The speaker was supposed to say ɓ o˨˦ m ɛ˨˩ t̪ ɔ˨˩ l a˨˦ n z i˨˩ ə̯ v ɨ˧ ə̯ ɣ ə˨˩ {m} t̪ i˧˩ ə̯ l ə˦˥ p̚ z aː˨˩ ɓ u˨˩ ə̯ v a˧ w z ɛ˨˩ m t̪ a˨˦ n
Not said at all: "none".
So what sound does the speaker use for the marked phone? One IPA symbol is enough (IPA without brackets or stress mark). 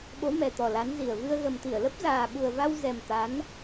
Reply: m